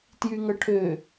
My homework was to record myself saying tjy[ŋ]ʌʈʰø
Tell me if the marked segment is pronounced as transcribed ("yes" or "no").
yes